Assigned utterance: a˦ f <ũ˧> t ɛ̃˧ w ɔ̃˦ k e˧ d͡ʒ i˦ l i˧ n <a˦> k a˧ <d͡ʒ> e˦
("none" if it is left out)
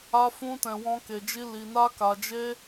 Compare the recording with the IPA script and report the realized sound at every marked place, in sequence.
ũ˦, a˦, d͡ʒ

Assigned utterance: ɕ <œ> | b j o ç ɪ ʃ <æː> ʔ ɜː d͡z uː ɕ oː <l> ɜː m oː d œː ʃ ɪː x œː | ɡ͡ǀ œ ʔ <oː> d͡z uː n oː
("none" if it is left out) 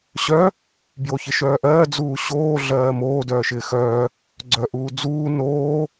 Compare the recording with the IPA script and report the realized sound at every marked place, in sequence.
œ, œː, ɮ, uː

